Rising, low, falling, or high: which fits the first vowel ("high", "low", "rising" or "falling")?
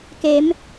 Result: rising